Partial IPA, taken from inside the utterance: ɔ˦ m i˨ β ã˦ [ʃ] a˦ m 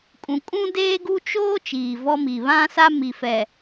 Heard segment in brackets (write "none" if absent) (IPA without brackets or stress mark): s